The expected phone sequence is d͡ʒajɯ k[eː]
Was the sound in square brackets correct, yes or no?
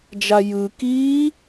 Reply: no